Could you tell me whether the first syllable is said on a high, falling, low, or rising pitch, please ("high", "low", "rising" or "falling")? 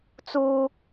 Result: high